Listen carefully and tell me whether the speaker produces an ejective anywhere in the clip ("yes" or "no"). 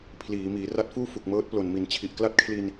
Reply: no